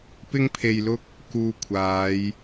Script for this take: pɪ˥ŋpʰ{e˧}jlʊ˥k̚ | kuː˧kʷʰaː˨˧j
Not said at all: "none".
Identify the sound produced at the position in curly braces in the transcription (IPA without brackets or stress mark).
e˧